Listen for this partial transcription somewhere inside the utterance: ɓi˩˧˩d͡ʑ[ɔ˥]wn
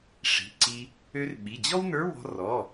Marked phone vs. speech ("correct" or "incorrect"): correct